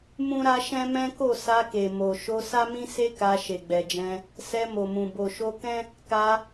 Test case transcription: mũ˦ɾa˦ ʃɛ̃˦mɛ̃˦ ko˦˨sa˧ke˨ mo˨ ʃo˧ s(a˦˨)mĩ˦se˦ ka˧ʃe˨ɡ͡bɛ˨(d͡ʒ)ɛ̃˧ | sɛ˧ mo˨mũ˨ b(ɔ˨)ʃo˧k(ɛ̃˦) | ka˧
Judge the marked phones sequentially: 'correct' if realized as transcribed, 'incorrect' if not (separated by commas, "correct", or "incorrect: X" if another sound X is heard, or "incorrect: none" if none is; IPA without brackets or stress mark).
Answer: incorrect: a˦, correct, incorrect: o˨, correct